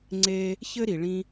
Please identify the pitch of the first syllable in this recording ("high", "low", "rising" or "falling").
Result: high